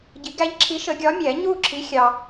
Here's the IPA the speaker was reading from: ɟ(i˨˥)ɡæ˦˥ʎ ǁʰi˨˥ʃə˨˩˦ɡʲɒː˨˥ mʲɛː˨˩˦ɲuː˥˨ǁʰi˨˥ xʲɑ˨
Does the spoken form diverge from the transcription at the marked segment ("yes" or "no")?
no